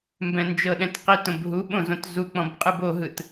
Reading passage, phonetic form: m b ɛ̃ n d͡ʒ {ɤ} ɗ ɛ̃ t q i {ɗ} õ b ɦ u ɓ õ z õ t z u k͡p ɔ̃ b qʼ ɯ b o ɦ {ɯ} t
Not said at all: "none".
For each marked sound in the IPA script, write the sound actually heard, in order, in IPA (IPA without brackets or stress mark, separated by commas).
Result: ɤ, t, ɯ